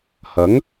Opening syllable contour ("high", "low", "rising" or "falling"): rising